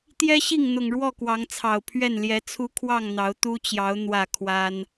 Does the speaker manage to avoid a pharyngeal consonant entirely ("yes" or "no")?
yes